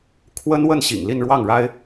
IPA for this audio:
kʰ w ə˥ n w ə˥˩ n ɕ ḭ˨˩ ŋ l i˥˧ n ɻ w ɑ˥˩ ŋ ɻ a˥ ɪ̯

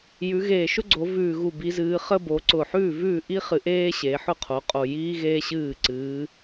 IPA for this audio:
j ʉ˩˧ ɣ eː˨˩ ʃ ʊ˥ ɡ͡ǀ o˩˧ v ʉː˨˩ ɣ u˨˩ b i˩˧ z ɨː˩˧ χ ə˥ b o˩˧ ǀ ʊː˨˩ ħ ʉː˥˨ v ʉː˥˨ ʔ i˥ χ ɨ˩˧ ʔ eː˥ ɕ e˩˧ ħ ʊ˥˨ qʰ o˩˧ qʼ o˨˩ j iː˥ ɣ eː˥ ɕ ɨː˥˨ ǀ ɨː˩˧

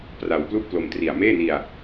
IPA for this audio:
p r a˧ w p l u˥˩ ʔ p l o˧ m t r i˨˩ a̯ m eː˥˩ n i˧ a̯

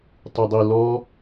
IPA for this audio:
tˤ y dˤ i l ɔ

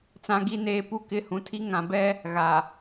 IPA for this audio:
t͡s ã˦ ɡ i˦ n eː˦ p u˦ k ɪ˦ h ũ˨ tʰ i˦ ŋ ã˨ b ɛ˦ | ɣ a˨

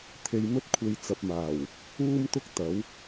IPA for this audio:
t̪ʰ e˧ j m ɵ˥ t̚ kʷʰ e˨ j t͡s ɐ˨ p̚ m aː˨˩ w | uː˥ m t̪ ʊ˥ k̚ t̪ ɐ˨˥ w

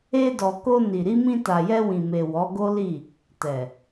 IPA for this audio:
e˧ d ɔ˨ k o˧ n i˨ ɾ i˧ m ĩ˧ t a˨ j ɛ˧ w ĩ˨ m e˨ w ɔ˨˦ ɡ o˦ l i˦˨ | t ɛ˨

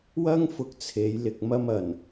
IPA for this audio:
w ɐ˥ ŋ f ʊ˧ k̚ t͡sʰ e˨˧ j l ɪ˨ k̚ m ɐ˧ m ɐ˨˩ n

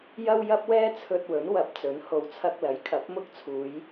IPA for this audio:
j ɐ˥ w j ɐ˥ p̚ w ɛː˥ t͡sʰ ɵ˧ t̚ w ɵ˨˥ n w ɐ˨˥ p̚ t͡s ɵ˨˥ n h o˨ w t͡sʰ ɐ˧ k̚ l ɐ˨˥ j kʰ ɐ˨˥ p̚ m ʊ˥ k̚ t͡sʰ uː˨˧ j

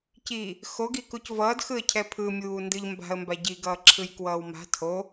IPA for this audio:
c i | x o ɡ i k u c v ʌː d x ɯ ə̯ cʰ ɛ pʰ ɯ mʲ uː n d ɯ ʎ m b a̤ ə̯ m b a ɟ i ɡ ʌː ǁʰ ɯ j k w ʌː w m a̤ tʰ o

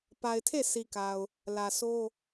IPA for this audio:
p a˨ ɪ̯ tʰ e˦˨ sʰ i˨ k a˨ ʊ̯ | l ä˨ sʰ o˦

